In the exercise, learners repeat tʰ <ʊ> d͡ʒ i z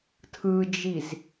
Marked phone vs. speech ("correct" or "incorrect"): incorrect